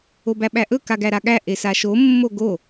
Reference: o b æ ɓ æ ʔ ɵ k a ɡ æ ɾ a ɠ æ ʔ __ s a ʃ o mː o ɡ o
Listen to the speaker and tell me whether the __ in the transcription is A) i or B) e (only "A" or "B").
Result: B